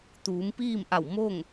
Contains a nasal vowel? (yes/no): no